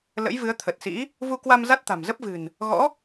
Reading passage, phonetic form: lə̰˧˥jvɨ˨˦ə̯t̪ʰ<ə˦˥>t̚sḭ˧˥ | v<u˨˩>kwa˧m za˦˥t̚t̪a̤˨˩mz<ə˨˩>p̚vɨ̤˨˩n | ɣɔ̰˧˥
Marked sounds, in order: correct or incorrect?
incorrect: ə˨˩, incorrect: u˧, incorrect: ə˦˥

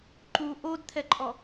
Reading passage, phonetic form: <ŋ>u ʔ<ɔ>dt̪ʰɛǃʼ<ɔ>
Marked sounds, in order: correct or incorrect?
incorrect: ǃ, incorrect: o, correct

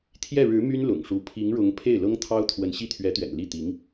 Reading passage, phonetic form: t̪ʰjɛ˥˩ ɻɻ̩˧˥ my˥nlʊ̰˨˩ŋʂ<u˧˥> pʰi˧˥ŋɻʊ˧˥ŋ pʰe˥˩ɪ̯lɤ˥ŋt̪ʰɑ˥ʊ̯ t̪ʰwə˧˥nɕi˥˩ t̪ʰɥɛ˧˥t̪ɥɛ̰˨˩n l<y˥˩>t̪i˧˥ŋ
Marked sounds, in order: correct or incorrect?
correct, incorrect: i˥˩

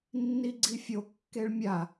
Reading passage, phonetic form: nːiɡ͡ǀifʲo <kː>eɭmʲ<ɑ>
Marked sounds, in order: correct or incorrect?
correct, incorrect: a

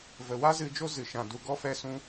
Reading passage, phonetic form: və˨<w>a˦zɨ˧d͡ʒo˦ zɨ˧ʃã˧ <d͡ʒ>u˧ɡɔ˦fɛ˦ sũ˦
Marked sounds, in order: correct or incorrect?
correct, incorrect: d

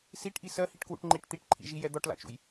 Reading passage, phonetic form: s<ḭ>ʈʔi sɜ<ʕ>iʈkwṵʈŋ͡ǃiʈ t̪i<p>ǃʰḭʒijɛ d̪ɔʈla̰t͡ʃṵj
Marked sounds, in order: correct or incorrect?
incorrect: i, incorrect: h, incorrect: ʈ

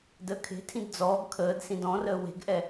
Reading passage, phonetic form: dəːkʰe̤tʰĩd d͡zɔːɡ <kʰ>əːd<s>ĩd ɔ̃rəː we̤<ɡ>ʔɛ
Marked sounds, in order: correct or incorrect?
correct, correct, correct

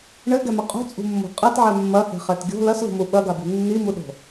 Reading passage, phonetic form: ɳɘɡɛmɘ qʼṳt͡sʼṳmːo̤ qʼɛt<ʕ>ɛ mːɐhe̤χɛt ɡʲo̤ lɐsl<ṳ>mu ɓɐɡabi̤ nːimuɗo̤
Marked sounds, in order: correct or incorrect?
correct, correct

